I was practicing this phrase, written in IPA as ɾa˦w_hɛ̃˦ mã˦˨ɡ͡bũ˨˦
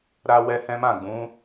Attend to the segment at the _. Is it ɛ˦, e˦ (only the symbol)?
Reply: ɛ˦